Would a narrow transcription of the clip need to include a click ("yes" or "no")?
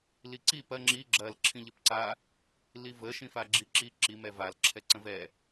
yes